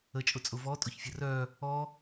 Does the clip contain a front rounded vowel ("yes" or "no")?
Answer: yes